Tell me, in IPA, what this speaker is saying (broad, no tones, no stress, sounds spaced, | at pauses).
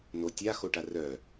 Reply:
n o tʲ a x o ʈ a r œ